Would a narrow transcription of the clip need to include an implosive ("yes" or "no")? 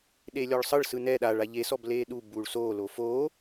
yes